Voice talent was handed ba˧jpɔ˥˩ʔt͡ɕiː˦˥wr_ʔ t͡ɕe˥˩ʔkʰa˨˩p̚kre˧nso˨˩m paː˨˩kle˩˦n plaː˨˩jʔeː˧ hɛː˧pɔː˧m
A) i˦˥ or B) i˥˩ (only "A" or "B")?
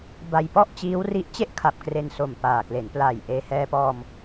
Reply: A